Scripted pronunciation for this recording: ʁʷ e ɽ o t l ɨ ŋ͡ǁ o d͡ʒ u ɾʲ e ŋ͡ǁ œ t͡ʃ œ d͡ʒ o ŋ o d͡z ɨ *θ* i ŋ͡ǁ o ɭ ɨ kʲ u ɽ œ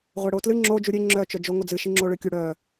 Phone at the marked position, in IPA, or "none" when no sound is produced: ʃ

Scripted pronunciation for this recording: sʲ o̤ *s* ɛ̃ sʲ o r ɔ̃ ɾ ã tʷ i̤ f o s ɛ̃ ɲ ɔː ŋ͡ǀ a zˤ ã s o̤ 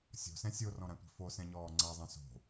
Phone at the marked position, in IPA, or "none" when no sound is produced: s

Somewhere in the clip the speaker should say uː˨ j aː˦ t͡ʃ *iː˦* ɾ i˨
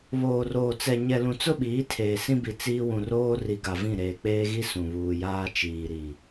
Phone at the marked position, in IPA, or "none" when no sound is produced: iː˨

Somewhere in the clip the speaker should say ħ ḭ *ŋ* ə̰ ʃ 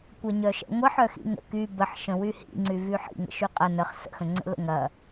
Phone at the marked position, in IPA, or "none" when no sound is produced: ŋ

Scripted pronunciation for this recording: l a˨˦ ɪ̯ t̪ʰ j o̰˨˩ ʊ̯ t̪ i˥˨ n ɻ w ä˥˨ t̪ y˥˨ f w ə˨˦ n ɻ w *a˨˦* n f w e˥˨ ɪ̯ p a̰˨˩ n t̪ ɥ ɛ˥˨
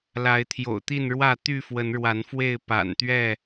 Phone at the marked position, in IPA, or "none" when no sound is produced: a˨˦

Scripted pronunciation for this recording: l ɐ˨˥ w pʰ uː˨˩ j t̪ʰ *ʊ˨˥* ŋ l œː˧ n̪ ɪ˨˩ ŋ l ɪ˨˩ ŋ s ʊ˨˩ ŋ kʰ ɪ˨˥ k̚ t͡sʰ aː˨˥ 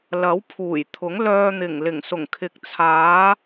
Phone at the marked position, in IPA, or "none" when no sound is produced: ʊ˨˥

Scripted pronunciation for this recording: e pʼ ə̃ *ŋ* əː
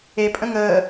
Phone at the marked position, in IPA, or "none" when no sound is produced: ŋ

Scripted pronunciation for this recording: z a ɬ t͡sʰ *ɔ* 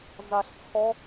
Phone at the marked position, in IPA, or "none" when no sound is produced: ɔ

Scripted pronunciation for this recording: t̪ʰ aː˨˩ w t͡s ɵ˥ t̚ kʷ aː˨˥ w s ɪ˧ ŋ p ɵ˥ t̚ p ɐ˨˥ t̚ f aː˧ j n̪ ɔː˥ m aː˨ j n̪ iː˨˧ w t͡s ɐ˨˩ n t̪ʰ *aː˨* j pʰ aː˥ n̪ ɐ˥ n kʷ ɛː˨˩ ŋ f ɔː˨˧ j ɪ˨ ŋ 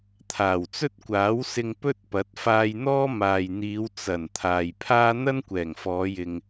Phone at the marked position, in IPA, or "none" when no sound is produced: aː˨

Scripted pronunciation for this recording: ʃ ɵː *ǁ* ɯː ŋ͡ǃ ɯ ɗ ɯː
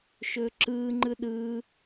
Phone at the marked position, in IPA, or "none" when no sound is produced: ǁ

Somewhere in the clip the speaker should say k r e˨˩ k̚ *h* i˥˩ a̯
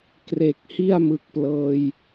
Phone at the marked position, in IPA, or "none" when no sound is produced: h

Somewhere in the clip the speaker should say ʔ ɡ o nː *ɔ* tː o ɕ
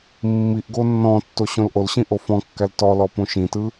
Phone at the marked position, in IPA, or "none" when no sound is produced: ɔ̃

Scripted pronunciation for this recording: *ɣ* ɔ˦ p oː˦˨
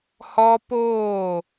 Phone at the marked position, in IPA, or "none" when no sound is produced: h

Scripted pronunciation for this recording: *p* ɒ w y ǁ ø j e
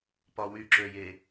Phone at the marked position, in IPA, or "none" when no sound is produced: p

